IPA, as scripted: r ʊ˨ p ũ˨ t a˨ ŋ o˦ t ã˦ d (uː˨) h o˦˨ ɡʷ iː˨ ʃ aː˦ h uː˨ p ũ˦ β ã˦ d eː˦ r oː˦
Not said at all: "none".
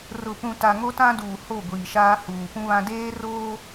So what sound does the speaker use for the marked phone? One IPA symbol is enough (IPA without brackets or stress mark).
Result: uː˨